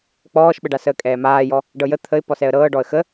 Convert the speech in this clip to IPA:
k͡p ɔː ʃ ɓ ə ɖ a s əː kʼ ɛː m aː j ɔ | ɖ ɤ j ə t̪ʰ ə ɪ̯ p ɔ s ɛ ə̯ ɾ ɤː ɖ ɔ ə̯ x ə

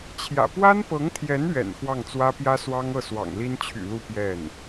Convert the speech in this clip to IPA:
t͡ɕʰ j ä̰˨˩ p w a˥ n p ɤ˧˥ ŋ t̪ʰ j ɛ˧˥ n ɥ ɛ̰˨˩ n x w ɑ˥˩ ŋ t͡s w ä˥ p j ä˥ s w ɑ˥ ŋ ɤ˥˩ s w ɑ̰˨˩ ŋ l i˥ n t͡ɕʰ y̰˨˩ l u˥˧ p j ɛ˥˩ n

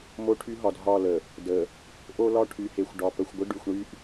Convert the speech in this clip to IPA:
m o˦ ʈʰ y˦ ɦ ɒ˨ d ɦ ɒ˦˨ l ə˨ | d ə˨ | ʔ o˦ l ɒ˦ ʈʰ y˨ h e˨ xʷ ɖ ɒ˨ p ə˨ xʷ ɡʷ ə˦ ɖ y˨ xʷ ɳ y˦ ʔ

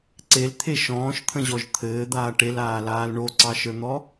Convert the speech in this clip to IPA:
ǀ e l t̪ʰ e ʃ ɔ̃ː ʃ t̪ʰ ə̃ ʑ ɔ ʒ t̪ʰ ɘː d̪ aː ʈ e l aː l aː l ɳ o ǀ ɑ ʃ ə˞ n̪ ɔ

